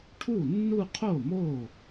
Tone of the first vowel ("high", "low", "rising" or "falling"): falling